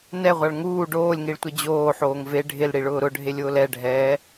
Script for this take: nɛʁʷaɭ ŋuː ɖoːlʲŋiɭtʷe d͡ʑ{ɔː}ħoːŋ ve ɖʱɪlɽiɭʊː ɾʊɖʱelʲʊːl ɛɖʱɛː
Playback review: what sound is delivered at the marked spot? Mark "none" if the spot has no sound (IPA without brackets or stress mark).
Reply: oː